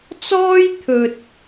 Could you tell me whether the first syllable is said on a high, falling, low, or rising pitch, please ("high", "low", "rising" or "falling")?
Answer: high